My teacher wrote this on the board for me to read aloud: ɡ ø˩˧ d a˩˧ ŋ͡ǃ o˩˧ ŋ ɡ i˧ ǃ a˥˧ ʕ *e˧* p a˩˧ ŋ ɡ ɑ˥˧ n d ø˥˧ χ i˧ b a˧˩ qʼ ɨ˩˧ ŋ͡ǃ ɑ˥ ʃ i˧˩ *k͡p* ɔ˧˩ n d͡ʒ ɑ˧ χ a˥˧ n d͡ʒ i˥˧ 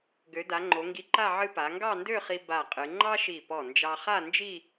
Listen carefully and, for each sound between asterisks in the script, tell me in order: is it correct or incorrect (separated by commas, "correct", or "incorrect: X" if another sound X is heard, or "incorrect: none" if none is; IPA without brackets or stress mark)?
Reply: incorrect: ɨ˧, incorrect: p